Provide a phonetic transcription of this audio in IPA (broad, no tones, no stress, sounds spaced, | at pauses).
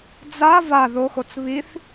d͡z a v a ð o x o t͡s β i θ